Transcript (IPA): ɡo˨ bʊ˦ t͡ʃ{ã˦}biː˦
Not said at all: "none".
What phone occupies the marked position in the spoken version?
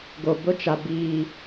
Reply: a˦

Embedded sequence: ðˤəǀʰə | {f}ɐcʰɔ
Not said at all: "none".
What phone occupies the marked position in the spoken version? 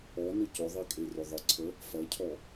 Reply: f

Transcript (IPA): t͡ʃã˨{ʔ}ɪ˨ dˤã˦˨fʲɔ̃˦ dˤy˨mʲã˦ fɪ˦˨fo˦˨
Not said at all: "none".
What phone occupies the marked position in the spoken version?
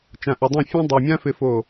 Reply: ʔ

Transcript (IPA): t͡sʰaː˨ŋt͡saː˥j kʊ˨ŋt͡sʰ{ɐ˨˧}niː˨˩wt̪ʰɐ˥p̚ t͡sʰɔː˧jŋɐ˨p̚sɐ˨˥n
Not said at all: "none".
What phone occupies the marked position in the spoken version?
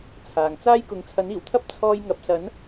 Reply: ɐ˨˥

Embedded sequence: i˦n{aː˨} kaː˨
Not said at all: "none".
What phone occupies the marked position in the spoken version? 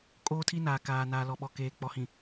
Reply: aː˨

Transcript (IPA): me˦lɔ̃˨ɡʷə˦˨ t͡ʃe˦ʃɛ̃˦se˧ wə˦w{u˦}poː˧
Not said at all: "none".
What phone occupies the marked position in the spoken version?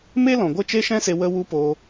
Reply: u˦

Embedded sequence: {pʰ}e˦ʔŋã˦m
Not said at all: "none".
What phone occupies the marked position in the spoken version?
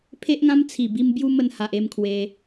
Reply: pʰ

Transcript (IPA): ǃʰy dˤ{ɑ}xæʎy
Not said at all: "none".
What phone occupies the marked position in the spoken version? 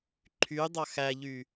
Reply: ɑ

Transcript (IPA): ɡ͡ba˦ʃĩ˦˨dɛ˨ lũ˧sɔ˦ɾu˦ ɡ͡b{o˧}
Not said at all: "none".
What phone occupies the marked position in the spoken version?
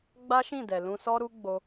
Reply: o˧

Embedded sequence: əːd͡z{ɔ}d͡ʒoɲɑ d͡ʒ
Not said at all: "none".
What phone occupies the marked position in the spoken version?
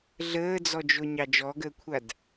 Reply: ɔ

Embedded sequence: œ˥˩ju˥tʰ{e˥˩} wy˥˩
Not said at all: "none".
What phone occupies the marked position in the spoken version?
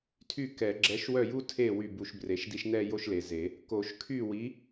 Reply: e˥˩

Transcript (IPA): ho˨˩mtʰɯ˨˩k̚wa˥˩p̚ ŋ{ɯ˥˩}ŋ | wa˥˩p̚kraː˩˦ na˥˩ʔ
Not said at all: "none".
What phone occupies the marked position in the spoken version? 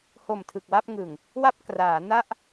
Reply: ɯ˨˩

